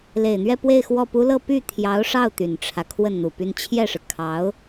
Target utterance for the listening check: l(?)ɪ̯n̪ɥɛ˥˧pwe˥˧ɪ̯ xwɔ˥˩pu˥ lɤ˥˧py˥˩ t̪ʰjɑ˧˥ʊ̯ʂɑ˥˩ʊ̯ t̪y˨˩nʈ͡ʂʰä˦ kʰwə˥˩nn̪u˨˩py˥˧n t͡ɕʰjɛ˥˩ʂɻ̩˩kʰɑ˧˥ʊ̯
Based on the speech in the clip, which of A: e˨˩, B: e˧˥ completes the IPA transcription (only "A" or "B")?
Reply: A